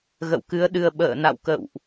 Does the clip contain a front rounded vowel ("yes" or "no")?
no